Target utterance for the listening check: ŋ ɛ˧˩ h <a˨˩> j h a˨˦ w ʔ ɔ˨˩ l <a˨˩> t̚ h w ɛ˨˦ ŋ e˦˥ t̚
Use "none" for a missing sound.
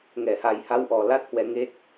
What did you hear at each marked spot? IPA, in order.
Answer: a˨˩, a˦˥

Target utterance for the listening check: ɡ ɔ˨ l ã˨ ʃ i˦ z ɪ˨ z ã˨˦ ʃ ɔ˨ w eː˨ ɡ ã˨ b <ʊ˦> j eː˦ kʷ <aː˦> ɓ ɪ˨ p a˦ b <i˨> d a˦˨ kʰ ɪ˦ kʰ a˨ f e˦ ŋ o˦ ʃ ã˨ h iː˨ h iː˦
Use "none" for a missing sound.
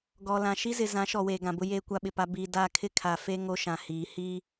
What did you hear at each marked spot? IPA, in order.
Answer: ʊ˦, a˦, i˨

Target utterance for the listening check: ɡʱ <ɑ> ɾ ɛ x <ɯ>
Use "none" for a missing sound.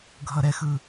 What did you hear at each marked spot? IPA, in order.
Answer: ʌ, ɯ

